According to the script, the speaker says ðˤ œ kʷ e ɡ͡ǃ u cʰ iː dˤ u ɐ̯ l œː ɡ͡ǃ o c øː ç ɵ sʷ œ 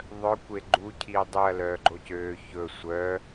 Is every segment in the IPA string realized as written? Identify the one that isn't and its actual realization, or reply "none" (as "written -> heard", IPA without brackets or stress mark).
none